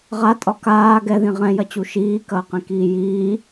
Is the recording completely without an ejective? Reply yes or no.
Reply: no